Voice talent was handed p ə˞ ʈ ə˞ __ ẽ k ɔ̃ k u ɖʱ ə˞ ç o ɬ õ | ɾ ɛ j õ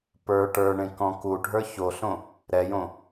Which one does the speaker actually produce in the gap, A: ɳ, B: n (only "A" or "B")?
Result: A